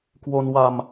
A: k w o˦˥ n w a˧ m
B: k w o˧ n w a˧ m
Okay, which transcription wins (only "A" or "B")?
B